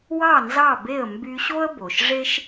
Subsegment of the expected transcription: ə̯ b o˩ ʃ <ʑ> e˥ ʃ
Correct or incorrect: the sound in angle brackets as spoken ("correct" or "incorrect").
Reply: incorrect